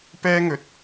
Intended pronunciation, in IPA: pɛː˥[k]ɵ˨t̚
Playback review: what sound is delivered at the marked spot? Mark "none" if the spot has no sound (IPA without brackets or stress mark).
ŋ